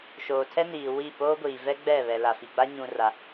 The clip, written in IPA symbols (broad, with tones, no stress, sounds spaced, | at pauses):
ʃ oː˨ tʰ ɛ˦ n iː˨ w i˦˨ p oː˦ ɡʷ iː˨ v ɛ˦ ɡ͡b ɛ˦˨ β ɛ˨ l a˨ f i˨ ɡ͡b a˦ ɲ ũ˨ r a˨